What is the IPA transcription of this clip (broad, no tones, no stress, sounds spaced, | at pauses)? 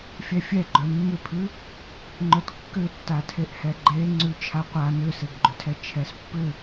fʲ ɛ fʲ ɛ ɡ͡ǃ œ mː ʏ pʰ ʉ | ŋ͡ǃ œ t kː ʏ tː a tʰ e ʔ h ɛ ɡ͡ǃ e ŋ͡ǀ ʉ t͡ʃʰ a qʷ a n ʏ s e ɡ ɡ͡ǃ ʏ tʰ ɛ t͡ʃʰ ɛ s pː ʏ